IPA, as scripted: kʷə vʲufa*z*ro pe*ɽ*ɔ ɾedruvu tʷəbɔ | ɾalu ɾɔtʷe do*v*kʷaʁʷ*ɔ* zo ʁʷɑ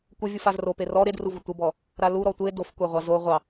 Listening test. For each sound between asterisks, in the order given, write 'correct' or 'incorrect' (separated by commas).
correct, incorrect, incorrect, incorrect